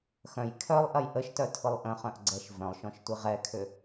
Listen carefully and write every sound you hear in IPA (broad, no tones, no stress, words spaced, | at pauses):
xœ̃j kʰœlˠʔɐj ʔəʃtœtʰʊlˠ ʔə̃χœ̃ʔɡ͡ǀɛʃ vœ̃lˠʃɔ̃ʃtʷi ʁɛkʰʏ